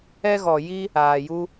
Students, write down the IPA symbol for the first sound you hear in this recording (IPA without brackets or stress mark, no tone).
ɛ